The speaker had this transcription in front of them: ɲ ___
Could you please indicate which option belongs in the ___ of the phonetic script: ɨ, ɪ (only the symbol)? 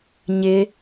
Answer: ɪ